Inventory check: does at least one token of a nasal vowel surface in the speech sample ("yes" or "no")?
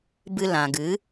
yes